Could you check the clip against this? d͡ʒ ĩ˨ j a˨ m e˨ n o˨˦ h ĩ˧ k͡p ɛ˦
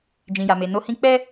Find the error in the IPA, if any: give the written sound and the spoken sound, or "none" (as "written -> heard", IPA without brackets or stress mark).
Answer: none